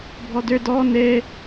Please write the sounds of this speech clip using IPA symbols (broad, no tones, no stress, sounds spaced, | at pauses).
bʱ ɔ d ø d ɔ n e